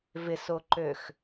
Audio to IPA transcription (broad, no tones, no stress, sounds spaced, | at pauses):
v ɪ s o ǃ ø x